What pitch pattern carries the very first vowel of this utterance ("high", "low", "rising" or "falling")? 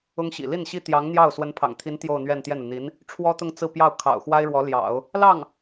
high